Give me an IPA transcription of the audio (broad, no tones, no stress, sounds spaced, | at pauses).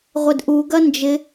ʁʷ ɪ d ʔ u ɡ ɐ n d͡ʒ ɪ